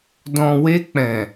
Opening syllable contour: low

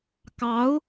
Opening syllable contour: rising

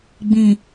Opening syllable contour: low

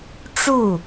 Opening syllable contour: falling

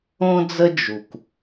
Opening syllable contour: high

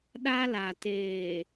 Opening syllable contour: high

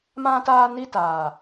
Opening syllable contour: high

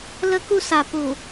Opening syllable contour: high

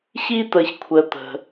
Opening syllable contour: high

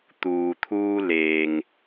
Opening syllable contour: low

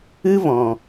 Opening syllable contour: high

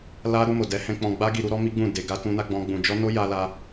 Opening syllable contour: high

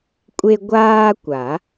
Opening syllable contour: high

